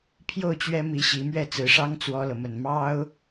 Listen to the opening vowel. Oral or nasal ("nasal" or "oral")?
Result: oral